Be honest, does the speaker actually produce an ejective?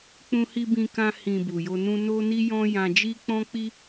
no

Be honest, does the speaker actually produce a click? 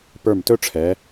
no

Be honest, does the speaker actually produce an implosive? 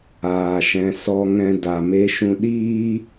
yes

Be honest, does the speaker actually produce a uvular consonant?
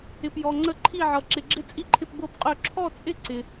yes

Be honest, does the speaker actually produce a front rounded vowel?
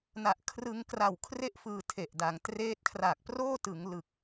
no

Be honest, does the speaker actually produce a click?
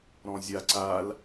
yes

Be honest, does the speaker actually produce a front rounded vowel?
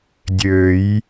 yes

